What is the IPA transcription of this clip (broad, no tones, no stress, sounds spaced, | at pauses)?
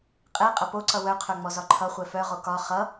qʼ ɛ qʼ ɐ p o ǀ ʌ w œ qʰ œ ŋ͡m ɔ z ɒ ǃʰ ʌ χʷ ɛ f œ ʁ o k ɒ χ ʌ